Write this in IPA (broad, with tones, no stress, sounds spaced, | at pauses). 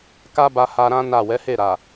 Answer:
k a˦ b a˧ h a˧ ɾ ã˦ n a˦˨ w ɛ˨˦ h e˦˨ ɾ a˨